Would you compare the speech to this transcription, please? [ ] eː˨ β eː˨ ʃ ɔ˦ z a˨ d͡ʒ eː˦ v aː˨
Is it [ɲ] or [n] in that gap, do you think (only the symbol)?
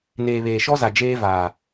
n